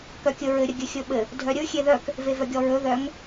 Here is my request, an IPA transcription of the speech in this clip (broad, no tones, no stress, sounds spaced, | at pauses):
k œ kʲ ɵ ɹ ɘ ɾʲ ə ɡʲ ɘ xʲ ɵ ɓ ɘ | dʱ œ ɾʲ ɵ xʲ e ð œ k | v e v œ ɡʲ ɔ ɹ ɵ ð œ ŋ